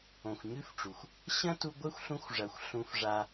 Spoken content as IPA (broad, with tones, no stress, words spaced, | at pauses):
õ˨xʷɲʉ˦fʈ͡ʂu˨xʷ | ɕɐ̃˦tu˧ ɡʷɘ˦xʷ ɬũ˧xʷʐɐ˨xʷ ɬũ˧fʐa˧